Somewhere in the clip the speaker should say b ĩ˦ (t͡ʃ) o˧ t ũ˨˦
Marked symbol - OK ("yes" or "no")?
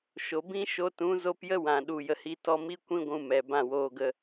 no